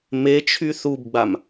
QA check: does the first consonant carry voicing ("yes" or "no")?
yes